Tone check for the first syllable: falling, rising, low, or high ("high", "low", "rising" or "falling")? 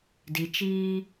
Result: low